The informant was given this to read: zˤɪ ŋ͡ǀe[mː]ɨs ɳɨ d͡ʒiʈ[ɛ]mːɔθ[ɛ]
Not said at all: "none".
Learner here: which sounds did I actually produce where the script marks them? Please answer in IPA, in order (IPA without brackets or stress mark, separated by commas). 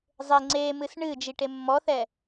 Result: m, e, ɛ